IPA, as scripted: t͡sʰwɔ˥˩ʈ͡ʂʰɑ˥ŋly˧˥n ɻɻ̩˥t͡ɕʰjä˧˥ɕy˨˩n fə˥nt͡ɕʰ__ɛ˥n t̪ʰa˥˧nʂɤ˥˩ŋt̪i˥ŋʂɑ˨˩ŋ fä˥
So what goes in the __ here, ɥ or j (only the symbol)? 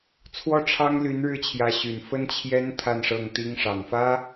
j